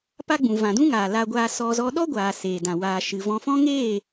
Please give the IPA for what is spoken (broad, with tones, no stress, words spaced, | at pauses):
pa˦ɡ͡bũ˨ vã˨dũ˦ŋaː˨ la˧ɡʷaː˧sɔ˧ zɔ˧ɗɔ˦ɡʷaː˨ seː˨dã˨ waː˨ʃɨ˨vɔ̃˧ fɔ̃˦ŋeː˦˨